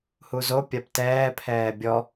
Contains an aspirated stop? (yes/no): yes